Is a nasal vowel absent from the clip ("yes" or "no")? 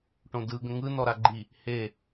no